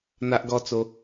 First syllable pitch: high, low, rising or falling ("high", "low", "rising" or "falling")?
high